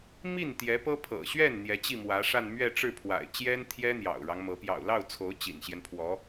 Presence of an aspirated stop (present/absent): present